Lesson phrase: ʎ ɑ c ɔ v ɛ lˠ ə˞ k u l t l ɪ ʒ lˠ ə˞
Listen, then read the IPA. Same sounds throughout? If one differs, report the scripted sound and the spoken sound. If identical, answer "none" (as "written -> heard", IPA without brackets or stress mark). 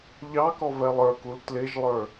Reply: c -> k